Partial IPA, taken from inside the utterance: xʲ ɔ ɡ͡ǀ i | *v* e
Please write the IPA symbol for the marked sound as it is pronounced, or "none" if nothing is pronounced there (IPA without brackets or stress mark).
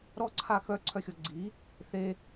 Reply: θ